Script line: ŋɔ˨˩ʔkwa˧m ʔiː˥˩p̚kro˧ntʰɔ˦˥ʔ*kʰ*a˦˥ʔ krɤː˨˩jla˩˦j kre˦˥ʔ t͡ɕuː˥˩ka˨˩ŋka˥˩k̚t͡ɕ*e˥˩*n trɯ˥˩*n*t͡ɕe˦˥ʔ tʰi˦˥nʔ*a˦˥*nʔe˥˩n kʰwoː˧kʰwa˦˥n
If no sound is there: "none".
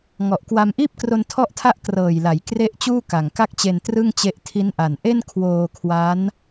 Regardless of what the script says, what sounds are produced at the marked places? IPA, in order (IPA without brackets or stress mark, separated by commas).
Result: tʰ, e˧, ŋ, a˨˩